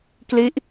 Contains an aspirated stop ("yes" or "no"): no